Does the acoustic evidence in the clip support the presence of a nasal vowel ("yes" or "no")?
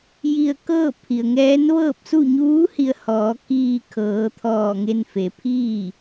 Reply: no